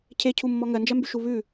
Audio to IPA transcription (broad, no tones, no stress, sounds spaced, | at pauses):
cʰ e cʰ u mː ɔ ŋ ɜ n d͡ʒ ɜ m b y ʃ u β ʉ